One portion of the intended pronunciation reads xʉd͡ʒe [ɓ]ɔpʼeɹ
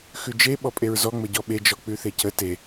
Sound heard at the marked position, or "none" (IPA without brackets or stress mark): ɓ